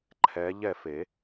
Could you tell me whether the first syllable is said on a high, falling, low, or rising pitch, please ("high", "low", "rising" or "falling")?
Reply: rising